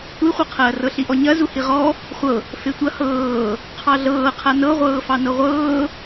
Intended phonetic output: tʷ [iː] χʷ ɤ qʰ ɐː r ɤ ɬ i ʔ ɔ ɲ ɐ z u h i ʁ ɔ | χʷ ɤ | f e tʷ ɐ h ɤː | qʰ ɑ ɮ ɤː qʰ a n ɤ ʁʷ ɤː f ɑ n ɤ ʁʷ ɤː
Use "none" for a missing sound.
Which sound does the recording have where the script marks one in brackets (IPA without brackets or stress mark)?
i